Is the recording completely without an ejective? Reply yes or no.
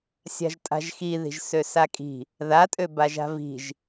no